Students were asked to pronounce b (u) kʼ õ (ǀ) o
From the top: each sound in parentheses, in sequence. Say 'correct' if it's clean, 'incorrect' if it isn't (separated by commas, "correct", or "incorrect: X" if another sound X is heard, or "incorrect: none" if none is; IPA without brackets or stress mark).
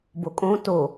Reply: incorrect: o, incorrect: t